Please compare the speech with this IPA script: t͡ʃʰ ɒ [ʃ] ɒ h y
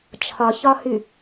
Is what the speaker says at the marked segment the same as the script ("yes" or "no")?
no